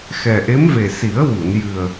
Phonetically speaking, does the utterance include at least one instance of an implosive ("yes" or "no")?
no